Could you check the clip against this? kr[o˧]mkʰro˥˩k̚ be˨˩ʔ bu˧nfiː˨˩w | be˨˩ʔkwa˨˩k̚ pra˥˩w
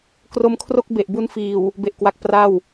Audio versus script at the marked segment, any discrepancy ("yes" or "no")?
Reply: no